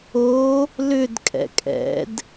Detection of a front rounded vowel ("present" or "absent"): present